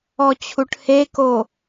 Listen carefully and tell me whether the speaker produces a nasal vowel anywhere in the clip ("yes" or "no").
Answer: no